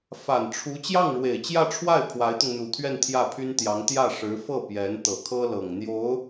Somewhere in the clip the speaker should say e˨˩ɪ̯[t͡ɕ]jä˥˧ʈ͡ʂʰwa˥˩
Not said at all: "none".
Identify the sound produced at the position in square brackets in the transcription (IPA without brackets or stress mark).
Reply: t͡ɕ